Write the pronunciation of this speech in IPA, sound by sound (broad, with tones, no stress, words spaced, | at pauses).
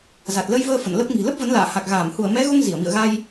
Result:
za˨˩t̚lə˧jvəː˧ fə̰˧˨nlə˦˥p̚ ŋi̤˨˩lə˦˥p̚və˨˦nla̰ː˧˨ ha˨˩k̚ɣaː˧˩m hu˧˩ə̯mɛ˨˦ɣo˧ŋ zi˧˩ə̯mḭ˧˨ə̯ɣa˧j